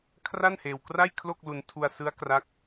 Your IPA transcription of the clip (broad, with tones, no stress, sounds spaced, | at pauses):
kʰ r a˥˩ n h eː˧ w k r a˥˩ j kʰ l o˥˩ k̚ l u˧ n tʰ u˧ a̯ s ɯ˦˥ a̯ k r a˦˥ k̚